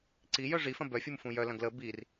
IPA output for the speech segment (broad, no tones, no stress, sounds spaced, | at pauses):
ǀ i j œ ʐ i f ɐ̃ b œ fʲ u m f ũ j œ l ɐ̃ ɡ l ə b i r